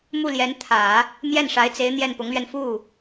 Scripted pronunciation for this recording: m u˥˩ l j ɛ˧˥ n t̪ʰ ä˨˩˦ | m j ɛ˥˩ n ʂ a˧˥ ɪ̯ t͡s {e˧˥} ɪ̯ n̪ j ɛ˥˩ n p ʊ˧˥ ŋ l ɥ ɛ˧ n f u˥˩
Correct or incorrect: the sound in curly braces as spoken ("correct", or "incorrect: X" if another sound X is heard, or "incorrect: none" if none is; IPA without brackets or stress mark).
correct